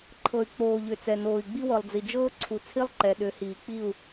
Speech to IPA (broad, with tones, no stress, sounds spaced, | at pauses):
ǃʰ ɤ˨ y̯ k͡p oː˨ ʎ ʏ˨ t͡s ɛ˨ n oː˨ i̯ ɡ͡b i˦ w ɤ˨ lˠ d͡z i˨ d͡ʒ ɤː˦ ǀʰ u˨ t͡sʰ i˦ lˠ ǃ ɛ˨ ɗ ʏ˨˦ h iː˨ k͡p i˦˨ u̯